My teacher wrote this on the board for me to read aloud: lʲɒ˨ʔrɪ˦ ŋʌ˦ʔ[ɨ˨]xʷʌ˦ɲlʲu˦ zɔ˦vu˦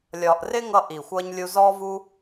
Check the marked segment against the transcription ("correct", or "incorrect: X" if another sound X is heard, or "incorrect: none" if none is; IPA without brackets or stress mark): incorrect: i˨